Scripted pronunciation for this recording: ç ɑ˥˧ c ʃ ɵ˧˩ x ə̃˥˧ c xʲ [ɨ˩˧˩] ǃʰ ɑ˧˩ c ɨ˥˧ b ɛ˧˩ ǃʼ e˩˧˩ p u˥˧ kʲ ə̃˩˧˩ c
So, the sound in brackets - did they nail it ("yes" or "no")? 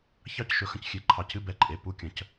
no